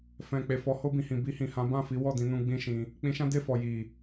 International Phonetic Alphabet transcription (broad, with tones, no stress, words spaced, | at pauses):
fɛ̃˨k͡pe˨fɔ˨˦ ho˧bĩ˨hĩ˨ bi˧hĩ˨ hã˨˦bã˦˨fi˨˦ wɔ˦˨dĩ˧nũ˧ ɡ͡bĩ˦ʃĩ˧ | k͡pĩ˧ʃã˦de˦˨fɔ˨ ji˨